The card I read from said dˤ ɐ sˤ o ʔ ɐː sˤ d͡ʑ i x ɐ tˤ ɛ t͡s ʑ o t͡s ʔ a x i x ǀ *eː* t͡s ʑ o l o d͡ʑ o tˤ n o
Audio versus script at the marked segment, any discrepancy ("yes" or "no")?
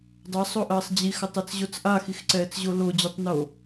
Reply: yes